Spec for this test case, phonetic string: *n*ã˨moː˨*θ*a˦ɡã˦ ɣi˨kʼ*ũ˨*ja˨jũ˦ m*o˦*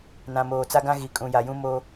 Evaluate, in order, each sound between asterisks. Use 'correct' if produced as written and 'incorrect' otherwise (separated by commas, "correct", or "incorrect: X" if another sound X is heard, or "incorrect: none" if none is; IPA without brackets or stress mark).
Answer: correct, incorrect: t͡s, correct, correct